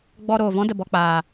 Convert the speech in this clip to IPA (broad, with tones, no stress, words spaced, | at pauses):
ɡ͡bɔ˧ ɾoː˨vɔ̃˦də˨ bɔ˧k͡paː˨